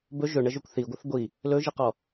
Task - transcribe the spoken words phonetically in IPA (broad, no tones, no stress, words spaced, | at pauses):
bɵ ʒɵɳəʒɵkʷ θiɡʷəθ ɡʷi | lɵʒiqɔ